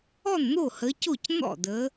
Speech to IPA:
ɔ˥˩ n n̪ o˥˩ h ə˨˦ c o˥˩ c n̪ ɔ̰˥˩ d ə˨˦

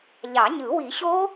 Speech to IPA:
ʎ ɑ˨˩˦ ɲ ɯ˨˩˦ w i˨˩˦ ɕ o˦˥

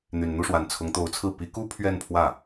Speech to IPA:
n̪ y˨˩ n n̪ u˥˩ ʂ w a˨˩ n t͡sʰ ʊ˧˥ ŋ t̪ o˧˥ ʊ̯ t͡sʰ ɹ̩˥˩ p i˧˥ k u˥ pʰ ɥ ɛ˥˧ n pʰ w ä˥˩

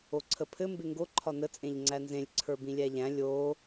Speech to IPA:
o ǀʰ ə pʰ ɘ m b e ŋ ɡ o ǃʰ ɒ n ə t͡sʼ ẽ ʎ ŋ͡ǀ æ n z ẽ lʲ ǀʰ ə˞ b ĩ lʲ æ ʎ æ̃ lʲ o

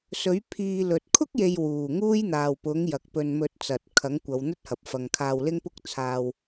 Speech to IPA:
s ɵ˨˥ ɥ pʰ iː˧ l ɵ˨ t̚ kʰ ʊ˥ k̚ j e˨ j w uː˨˩ ŋ uː˥ j n̪ aː˨ w p ʊ˨˥ ŋ j ɐ˨ k̚ p ɵ˧ n m ɵ˧ t̚ t͡s ɐ˨ t̚ kʰ ɐ˨˥ ŋ kʷ ɐ˨˧ w n̪ ɵ˥ t̚ h ɐ˨ p̚ f ɐ˨ ŋ kʰ aː˧ w l ɪ˥ ŋ p ʊ˥ k̚ t͡sʰ aː˧ w

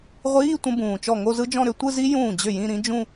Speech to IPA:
ʁʷ iː˧˥˧ tʷ ə̃˦˥ b ũː˨˩ t͡ʃ ɔ˥˩ ŋ o˥˧ z ɯ˦˥ d͡ʒ ɔ̃˥˧ ɾ ʏ˥˧ tʷ ɯ˥˧ z i˦˥ j ũː˥˩ d͡ʑ ʏ˥˩ j ĩ˥˧ ɾ ĩ˦˥ d͡ʒ ũ˥˧

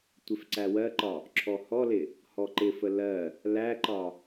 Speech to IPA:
tʷ ɪ f ǀ æ w ɜ ǃ ɒ | ǁʰ ɔ h ɔ l ɪ | h ɔ ǃ ɪ f ə l ɜ | l æ ǃ ɒ

